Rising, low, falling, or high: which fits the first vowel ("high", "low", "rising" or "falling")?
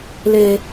high